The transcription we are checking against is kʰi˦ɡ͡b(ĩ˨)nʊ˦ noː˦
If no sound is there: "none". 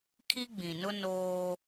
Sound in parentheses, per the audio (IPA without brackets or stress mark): ĩ˨